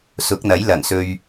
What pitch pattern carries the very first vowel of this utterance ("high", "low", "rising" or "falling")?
rising